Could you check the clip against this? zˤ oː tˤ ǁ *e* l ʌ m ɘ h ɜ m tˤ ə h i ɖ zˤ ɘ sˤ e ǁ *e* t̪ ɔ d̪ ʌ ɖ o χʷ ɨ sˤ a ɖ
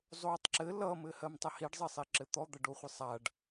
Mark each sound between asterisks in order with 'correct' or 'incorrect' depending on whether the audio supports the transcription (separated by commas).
incorrect, incorrect